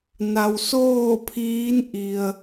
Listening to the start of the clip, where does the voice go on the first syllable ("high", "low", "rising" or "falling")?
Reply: low